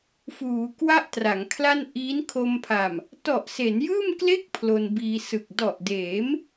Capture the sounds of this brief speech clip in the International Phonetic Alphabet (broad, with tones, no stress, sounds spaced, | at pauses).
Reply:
f uː˩˦ k w a˥˩ ʔ t r a˩˦ ŋ kʰ l a˥˩ n ʔ iː˦˥ n kʰ o˧ m pʰ a˨˩ m | t ɔ˨˩ ʔ s e˩˦ n j ɯː˥˩ m k l e˥˩ k̚ pʰ l o˧ n b iː˧ s ɯ˨˩ k̚ d ɔ˨˩ ʔ d eː˩˦ m